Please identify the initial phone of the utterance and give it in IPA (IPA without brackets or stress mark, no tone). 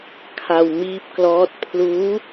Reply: kʰ